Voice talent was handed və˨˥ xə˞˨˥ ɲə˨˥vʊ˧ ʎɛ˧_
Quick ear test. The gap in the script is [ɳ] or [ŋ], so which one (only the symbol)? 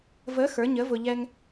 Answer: ŋ